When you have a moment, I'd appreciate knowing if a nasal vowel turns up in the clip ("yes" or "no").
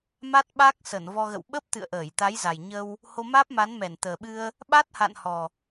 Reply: no